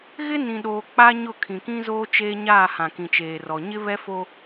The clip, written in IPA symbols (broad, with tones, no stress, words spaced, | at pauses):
ɣɪ˦nĩ˨ɗoː˨ k͡pa˦ɲʊ˦˨ kʰĩ˨kĩ˦zoː˦t͡ʃeː˦ ɲaː˦˨hã˨ kĩ˨t͡ʃeː˨rɔ˨ ɲɪ˦βɛ˦fo˦